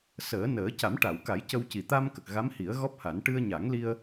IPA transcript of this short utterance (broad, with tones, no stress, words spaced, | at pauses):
səː˨˩˦nəː˨˩˦ ca˨˩˦mʈa˨˩˨wka˨˩˦j cə˧wci˨˩ t̪a˧mkə˨˩k̚ ɣa˧˥mhi˨˩˦ə̯ɣɔ˦˥p̚ha˨˩˦n ʈɨ˧ə̯ɲa˨˩˦ŋli˧ə̯